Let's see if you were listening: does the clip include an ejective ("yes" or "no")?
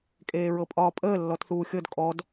yes